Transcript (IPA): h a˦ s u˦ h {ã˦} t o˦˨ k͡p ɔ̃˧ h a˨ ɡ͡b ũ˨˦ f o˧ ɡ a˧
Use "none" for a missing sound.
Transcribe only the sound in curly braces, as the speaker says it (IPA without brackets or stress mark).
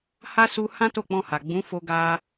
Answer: ã˦